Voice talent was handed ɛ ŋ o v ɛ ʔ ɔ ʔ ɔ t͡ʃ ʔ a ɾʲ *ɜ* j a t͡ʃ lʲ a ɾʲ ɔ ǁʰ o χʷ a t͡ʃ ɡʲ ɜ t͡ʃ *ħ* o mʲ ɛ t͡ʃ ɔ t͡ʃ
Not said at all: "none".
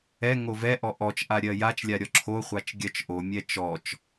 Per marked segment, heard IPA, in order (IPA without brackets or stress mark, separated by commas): ɜ, ʔ